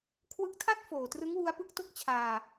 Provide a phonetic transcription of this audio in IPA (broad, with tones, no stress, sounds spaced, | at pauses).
kʰ w ɯ˦˥ k̚ tʰ a˥˩ t̚ f oː˨˩ t r ɯ˦˥ ŋ w u˦˥ a̯ p ɯ˦˥ k̚ t o˥˩ k̚ t͡ɕʰ aː˧